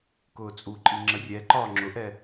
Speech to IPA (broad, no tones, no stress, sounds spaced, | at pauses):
k ʊː t͡sʼ u ǃʼ i ŋ͡ǁ ə rʲ ɛ ǃ ɒː ŋ͡ǁ ʊ ʔ ɛ